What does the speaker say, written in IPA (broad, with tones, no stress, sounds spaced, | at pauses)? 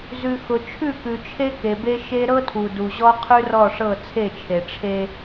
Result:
z ʉ˨ x ʊ˨ t͡ʃʰ ʉ˦˨ k ʉ˨ t͡ʃʰ e˦ k e˨ b e˦ ʃ e˦ ɾ ɤ˦ tʰ u˨ d u˨ ʑ ɔ˦ qʰ ʉ˦ r ɔ˦˨ ʂ ɤ˦˨ t͡sʰ e˦˨ t͡ʃʰ e˨ ʈ͡ʂʰ e˦